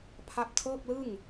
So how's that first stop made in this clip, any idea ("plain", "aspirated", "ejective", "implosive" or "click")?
aspirated